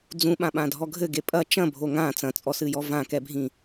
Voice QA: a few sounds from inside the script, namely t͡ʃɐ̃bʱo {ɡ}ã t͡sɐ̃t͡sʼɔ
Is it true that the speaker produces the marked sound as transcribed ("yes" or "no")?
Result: no